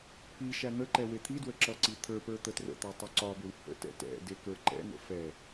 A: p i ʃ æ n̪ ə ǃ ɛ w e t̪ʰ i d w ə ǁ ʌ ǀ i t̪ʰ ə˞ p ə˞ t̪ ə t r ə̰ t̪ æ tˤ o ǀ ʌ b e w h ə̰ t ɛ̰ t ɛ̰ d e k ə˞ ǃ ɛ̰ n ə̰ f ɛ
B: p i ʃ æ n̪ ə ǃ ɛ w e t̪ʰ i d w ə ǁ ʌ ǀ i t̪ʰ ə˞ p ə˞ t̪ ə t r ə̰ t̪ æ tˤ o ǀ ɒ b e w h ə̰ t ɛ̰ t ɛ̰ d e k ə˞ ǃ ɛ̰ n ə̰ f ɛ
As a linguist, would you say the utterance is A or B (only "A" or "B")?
B